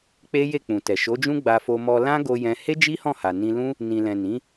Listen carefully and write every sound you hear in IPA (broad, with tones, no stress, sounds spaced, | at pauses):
k͡p e˦ j e˦˨ k͡p ũ˨ t ɛ˨ ʃ o˨˦ d͡ʒ ũ˦ ɡ͡b a˧ f o˧ m ɔ˧ l ã˦ ɡ o˧ j ɛ̃˧ h e˦ d͡ʒ i˦ h ɔ̃˦˨ h a˨ n ĩ˧ l ũ˦ | n ĩ˨ l ɛ̃˨ n ĩ˨˦